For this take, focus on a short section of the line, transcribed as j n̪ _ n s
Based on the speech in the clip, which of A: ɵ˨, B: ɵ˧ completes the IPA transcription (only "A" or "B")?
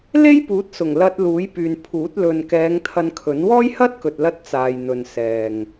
A